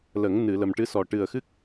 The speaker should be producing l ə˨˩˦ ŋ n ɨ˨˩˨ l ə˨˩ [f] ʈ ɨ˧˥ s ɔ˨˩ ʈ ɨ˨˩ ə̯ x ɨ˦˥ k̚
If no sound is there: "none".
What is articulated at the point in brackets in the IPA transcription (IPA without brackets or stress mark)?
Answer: m